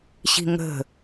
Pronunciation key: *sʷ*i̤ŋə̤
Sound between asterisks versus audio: incorrect: ɕ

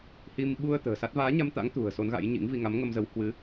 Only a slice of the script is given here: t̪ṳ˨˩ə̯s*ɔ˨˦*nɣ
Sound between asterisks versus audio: incorrect: o˨˦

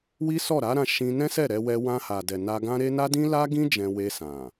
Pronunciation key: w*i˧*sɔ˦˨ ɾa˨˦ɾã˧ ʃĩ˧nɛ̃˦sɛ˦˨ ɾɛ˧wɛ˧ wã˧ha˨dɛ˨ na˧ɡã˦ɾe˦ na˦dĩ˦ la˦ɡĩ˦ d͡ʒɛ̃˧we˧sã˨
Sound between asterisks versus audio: incorrect: i˦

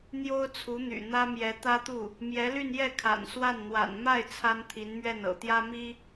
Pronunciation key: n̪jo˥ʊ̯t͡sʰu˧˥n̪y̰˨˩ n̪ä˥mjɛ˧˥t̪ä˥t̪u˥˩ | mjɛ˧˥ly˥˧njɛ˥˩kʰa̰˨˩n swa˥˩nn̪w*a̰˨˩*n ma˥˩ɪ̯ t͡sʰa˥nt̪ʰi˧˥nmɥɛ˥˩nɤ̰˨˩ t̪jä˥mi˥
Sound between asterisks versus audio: correct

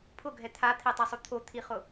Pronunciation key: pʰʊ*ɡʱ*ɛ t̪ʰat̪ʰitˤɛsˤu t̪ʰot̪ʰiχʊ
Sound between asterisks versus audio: correct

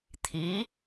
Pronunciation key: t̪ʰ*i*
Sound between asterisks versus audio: correct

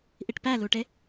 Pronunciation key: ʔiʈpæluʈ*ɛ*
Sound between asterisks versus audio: incorrect: e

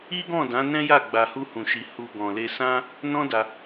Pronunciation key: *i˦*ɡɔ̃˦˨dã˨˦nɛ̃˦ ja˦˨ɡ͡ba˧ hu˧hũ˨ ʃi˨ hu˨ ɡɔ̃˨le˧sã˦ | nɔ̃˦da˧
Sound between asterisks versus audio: correct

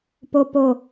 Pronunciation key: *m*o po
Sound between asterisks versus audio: incorrect: p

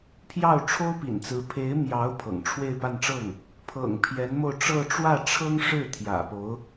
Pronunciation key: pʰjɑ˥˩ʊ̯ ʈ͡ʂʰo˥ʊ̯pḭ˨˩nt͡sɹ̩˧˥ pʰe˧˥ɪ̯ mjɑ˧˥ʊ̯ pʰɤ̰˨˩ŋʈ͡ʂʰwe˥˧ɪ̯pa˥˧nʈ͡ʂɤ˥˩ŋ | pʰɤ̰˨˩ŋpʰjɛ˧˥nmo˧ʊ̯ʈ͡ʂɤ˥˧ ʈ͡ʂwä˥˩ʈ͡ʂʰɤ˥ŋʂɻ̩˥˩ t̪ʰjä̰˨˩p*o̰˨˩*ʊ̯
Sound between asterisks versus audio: incorrect: o˧˥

